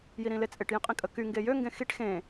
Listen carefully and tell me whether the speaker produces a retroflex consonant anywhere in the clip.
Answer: yes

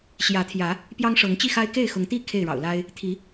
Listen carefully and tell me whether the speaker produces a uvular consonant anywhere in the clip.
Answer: no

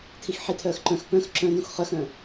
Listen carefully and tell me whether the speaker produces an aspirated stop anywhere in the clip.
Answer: yes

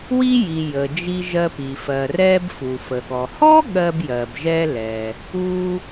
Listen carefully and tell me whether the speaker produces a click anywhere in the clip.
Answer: no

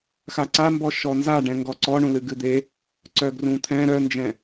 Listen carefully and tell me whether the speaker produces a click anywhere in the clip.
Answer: yes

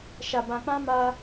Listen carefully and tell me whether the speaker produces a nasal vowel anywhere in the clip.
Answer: yes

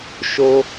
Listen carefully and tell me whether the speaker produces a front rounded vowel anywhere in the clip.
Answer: no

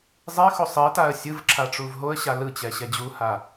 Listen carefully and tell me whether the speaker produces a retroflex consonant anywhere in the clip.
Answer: yes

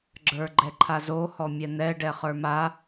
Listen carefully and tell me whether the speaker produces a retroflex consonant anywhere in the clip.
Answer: yes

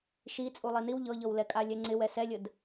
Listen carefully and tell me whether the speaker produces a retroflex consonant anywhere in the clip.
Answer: no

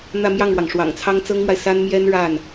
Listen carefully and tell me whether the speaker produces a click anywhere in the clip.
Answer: no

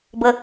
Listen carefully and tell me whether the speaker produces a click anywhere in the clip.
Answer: no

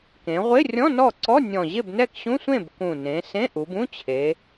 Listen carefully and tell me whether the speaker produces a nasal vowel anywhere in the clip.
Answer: yes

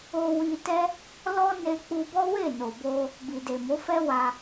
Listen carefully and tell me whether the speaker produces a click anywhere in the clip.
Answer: no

